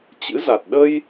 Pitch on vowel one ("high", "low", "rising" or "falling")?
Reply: rising